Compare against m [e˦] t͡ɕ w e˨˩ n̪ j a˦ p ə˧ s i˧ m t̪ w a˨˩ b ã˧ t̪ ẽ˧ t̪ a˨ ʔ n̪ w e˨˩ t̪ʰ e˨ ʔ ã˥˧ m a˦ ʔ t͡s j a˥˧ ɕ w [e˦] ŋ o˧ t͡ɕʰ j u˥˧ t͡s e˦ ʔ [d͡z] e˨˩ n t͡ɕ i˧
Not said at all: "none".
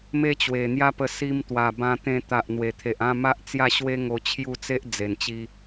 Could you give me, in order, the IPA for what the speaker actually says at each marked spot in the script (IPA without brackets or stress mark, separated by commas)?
e˦, e˦, d͡z